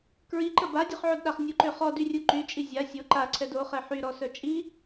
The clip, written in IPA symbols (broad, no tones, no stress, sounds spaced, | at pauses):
k ɹ i ǃ ə b a dʲ œ χ ʕ o d ɗ a χ nʲ u ǃ ø χ ɔ d y rʲ u ǃ y t͡ʃʼ i zʲ a sʲ o ǃ a ǀʰ ɛ d o χ ɛ ħ y ɾ ɔ s œ t͡ʃʼ i